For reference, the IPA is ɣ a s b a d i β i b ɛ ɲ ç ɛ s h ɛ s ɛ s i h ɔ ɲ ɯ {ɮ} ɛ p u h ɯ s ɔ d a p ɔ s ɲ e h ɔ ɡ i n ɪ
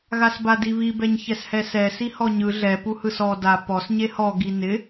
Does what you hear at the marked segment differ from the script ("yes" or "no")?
no